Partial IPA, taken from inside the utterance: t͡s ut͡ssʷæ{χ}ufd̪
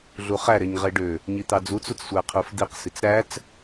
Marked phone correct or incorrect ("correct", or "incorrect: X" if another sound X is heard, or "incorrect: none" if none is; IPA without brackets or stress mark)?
incorrect: qʰ